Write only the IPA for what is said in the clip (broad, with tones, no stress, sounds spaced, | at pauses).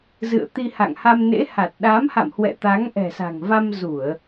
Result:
z ɨ̰˧˨ ə̯ t̪ i˧ h a̰˧˨ ŋ h a˧ m n ḛ˧˥ h a˨˩ t̚ ɗ a˨˦ m h a̰˧˨ m h w ɛ̰˧˨ t̪ a˨˦ ŋ ʔ ɛ̤˨˩ s a̤˨˩ ŋ v a˧ m z u˧˩˨ ə̯